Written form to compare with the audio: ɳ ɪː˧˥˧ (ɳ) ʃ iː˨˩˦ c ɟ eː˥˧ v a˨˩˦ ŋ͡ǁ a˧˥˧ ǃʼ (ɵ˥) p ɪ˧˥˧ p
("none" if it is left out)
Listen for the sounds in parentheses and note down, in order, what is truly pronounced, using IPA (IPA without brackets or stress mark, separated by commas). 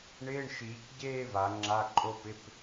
ɳ, o˥